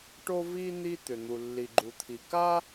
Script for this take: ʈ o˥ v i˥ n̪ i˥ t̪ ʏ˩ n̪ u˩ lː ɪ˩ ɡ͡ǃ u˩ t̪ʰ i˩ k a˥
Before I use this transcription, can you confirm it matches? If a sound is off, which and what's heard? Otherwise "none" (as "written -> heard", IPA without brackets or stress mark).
ɪ˩ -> i˩